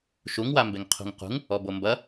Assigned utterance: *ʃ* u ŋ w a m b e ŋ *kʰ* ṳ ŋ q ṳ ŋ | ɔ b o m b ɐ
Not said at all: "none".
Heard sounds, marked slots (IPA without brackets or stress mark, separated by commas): ʃ, qʰ